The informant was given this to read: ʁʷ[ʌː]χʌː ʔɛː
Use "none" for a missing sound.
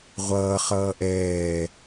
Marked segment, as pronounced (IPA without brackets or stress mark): ʌː